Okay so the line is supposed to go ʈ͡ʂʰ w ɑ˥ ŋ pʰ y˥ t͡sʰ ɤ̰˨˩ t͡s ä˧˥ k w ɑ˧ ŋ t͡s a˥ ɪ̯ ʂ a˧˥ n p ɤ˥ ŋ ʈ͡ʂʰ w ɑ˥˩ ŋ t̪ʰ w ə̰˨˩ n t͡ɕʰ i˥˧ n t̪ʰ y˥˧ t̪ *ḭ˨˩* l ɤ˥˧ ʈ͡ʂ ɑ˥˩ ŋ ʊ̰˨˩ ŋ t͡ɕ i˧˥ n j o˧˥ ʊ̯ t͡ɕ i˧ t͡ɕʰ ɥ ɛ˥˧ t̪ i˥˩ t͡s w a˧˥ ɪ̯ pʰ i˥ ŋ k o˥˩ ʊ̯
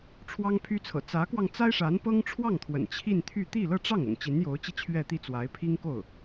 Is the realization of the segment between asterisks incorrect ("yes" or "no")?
yes